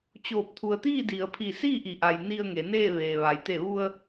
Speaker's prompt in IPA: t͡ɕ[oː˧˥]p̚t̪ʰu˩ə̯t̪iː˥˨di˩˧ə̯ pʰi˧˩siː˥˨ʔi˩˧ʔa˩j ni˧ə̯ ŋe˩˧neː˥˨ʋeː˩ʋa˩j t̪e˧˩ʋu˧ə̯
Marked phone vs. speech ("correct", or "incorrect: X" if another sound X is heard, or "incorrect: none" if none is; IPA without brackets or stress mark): incorrect: oː˧˩